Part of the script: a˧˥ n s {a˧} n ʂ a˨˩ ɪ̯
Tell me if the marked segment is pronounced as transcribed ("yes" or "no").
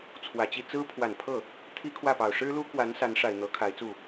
no